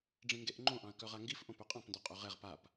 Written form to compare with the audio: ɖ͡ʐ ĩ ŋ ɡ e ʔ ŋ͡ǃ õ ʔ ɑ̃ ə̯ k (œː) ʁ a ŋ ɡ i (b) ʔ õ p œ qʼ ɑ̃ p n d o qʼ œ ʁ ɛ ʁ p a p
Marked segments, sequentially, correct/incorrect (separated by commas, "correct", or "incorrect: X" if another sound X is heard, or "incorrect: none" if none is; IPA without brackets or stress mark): incorrect: œ, incorrect: f